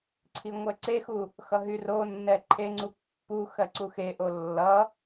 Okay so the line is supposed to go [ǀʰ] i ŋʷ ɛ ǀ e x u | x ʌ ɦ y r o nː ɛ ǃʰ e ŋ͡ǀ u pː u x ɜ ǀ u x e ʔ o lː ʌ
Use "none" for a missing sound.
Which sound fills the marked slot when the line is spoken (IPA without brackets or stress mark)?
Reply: ǀʰ